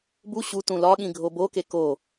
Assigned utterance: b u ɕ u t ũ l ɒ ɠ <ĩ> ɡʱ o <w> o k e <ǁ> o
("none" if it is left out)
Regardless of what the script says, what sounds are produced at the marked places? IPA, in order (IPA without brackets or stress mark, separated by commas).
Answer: ĩ, b, k